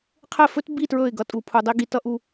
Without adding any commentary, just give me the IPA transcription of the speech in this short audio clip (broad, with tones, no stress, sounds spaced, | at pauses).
qʰ ɘ˦˨ f ɵ˦ t b i˦˨ t ɹ ɵ˦˨ ɪ̯ ɡ ʌ˧ tʼ u˨ pʰ u˨ dˤ i˦ ɡ i˧ t ʌ˦ ʔ u˧